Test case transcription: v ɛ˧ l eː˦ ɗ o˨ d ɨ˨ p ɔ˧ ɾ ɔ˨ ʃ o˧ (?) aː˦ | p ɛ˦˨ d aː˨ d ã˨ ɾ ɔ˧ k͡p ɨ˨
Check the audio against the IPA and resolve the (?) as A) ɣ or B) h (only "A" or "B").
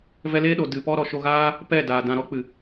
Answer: A